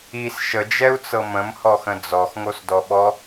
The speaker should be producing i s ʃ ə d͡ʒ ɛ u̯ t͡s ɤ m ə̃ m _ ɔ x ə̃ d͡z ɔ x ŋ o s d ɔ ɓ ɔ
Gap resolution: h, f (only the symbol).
h